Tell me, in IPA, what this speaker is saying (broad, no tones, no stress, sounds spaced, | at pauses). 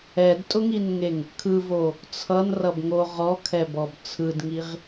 ɛ d tʼ ʊ ŋ i n ŋ e ŋ | kʰ ɯ v o | t͡sʰ ʌ n r ʌ b ŋ o ʁ ɔ kʰ ɛ b ɔ b t͡sʰ ɯ d ŋ i ʁ